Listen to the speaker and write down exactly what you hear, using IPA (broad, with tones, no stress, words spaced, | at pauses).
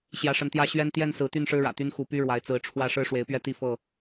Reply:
ɕjä˨˦ʂə˨˦nt̪jä˦ ɕɥɛ˦n t̪jɛ˥˨nsɹ̩˨˦ t̪y˥˨nʂɻ̩˦ɻä̰˨˩ t̪y˦nxu˨˦py˦ɻwa˨˦ɪ̯ t͡sɹ̩˨˦ʈ͡ʂʰwä˥˨ ʂɻ̩˦ʂwe˨˦ɪ̯pɥɛ˦ t̪i˥˨fɤ˥˨